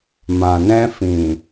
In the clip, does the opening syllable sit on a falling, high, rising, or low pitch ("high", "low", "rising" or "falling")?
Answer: low